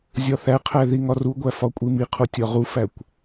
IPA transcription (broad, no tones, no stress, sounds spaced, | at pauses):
zʲ ɒ θ æ qʰ æ ð i ŋ ɒ r u ɡʷ æ f ɒ kʷʼ i m i qʰ o tʲ ɒ ʁ u f æ kʷ